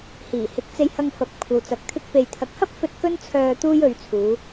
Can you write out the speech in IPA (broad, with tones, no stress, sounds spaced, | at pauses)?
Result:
h iː˨˩ h ɪ˨˥ k̚ t͡s e˧ j h ɐ˧ ŋ f ɐ˨˥ p̚ kʷʰ ɐ˨ w t͡s ɐ˨ k̚ t̪ʰ ɪ˥ k̚ p e˨ j t̪ʰ ɐ˨ k̚ h ɐ˥ p̚ f ɵ˧ t̚ k ɵ˥ n t͡sʰ œː˧ t̪ uː˥ j ɵ˧ ɥ t͡sʰ uː˨˧